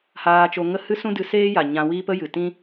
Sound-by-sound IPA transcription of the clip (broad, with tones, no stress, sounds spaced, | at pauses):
h aː˧ t͡ʃ o˧ ŋ ə˦ h ɨ˦ s ũ˦ d ɨ˧ s eː˦ j a˨ ɲ ã˧ w iː˦ p ə˦ j ɨ˨ t ĩ˦